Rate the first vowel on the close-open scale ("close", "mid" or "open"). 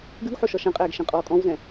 close